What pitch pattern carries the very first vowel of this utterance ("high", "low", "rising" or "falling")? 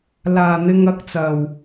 low